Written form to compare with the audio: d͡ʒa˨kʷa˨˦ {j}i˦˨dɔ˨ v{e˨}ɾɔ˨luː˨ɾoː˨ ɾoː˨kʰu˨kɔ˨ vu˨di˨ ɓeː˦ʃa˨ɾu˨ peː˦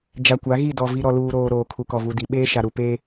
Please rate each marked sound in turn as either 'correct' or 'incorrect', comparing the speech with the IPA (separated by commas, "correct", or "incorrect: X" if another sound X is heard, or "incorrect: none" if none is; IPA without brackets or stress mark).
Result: incorrect: ɣ, incorrect: i˨